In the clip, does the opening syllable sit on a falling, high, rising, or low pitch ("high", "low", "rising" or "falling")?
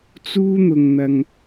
high